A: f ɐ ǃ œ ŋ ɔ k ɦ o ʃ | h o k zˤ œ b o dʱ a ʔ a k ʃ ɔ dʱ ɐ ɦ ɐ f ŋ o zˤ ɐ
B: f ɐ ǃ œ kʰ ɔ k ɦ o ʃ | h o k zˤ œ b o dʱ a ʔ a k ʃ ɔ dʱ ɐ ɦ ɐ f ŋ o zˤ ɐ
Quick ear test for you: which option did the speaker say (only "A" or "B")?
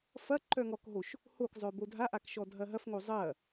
A